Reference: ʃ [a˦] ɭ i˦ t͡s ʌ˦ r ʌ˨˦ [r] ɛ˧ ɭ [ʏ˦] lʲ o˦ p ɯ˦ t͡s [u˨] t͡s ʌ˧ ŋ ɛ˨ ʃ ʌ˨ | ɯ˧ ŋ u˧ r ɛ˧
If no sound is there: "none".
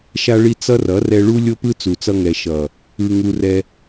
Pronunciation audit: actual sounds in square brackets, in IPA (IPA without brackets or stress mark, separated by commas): a˦, r, u˦, u˨